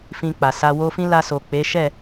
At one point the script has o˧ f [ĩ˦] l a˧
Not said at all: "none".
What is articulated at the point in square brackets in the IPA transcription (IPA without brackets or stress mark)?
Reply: ĩ˦